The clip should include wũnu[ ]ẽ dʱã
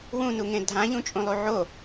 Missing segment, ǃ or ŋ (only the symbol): ŋ